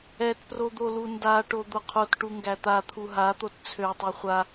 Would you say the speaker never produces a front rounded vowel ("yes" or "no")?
no